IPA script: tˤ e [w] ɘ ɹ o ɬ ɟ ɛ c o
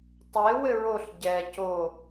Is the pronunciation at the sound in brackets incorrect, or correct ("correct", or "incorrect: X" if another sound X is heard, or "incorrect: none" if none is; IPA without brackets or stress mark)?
correct